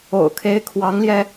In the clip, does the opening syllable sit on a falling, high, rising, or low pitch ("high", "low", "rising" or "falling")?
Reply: low